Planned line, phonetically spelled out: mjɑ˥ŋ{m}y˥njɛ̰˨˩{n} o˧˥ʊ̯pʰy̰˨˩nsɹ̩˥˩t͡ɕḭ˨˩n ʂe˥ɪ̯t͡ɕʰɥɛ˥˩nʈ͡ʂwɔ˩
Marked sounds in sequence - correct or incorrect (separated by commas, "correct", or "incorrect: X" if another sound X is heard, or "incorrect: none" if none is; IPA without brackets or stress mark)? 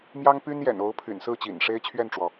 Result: incorrect: p, correct